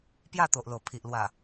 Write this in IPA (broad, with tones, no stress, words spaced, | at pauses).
pja˥˧t̪o˨ʔlo˨˩ pʰi˨ʔ lwa˨˩